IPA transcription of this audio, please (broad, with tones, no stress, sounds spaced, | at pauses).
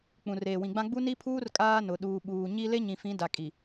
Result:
k͡p ũ˨ r eː˨ w ĩ˨ ɡ͡b ã˦ ɡ͡b u˦ n i˦ pʰ uː˦ r kʼ aː˦ n ʊ˨ ɗ uː˨ ɓ uː˨ ɲ i˦ l e˦ ɲ ĩ˨ f ĩ˨˦ d a˨ kʼ i˨